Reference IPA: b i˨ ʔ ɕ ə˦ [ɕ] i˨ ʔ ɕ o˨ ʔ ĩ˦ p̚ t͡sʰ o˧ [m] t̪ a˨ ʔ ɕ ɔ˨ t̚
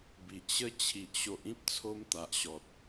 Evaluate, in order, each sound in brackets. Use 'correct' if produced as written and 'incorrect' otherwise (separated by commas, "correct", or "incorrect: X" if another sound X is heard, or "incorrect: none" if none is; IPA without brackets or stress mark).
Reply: incorrect: t͡ɕʰ, correct